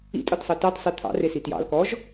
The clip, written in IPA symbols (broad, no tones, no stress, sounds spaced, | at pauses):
ḭ tʼ ɤ t sˤ ɜ t ɑ t sˤ e t̪ʰ ɑ̰ r e s i t j ɑ̰ l k ɔ ʒ